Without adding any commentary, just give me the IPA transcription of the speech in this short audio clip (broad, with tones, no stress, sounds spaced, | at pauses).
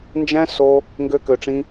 n d͡ʒ æ̃˦ s o˧ | ŋ ɡ ø˦ k ø˧ ʈ͡ʂ ĩ˦